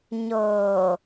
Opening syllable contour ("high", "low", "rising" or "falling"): low